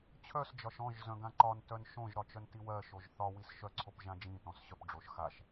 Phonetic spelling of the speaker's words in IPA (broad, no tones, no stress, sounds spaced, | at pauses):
t͡ɕʰ œ s d͡ʒ ɒ ʃ ɔ̃ ʒ z œ̃ ɡ ã ǃ ɒ n t œ n ʃ õ ʒ ɾ ɒ t͡ʃ œ n t i w ɜ ʃ o ʒ θ ɒ w i s ʃ œ ǀʰ o p ʒ ã d͡ʒ ĩ t ɔ̃ s ɕ œ p ɖ͡ʐ o ʃ x a ʃ